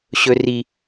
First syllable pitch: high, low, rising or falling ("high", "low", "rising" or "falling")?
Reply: high